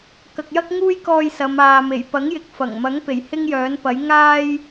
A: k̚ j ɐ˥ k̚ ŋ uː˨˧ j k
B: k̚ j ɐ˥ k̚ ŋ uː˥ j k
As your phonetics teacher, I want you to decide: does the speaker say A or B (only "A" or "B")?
B